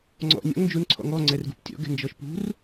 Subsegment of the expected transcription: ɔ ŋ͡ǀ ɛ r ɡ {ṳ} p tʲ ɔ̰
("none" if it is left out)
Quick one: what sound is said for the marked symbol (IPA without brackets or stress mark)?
ṳ